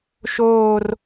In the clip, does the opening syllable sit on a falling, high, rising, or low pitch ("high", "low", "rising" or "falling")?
falling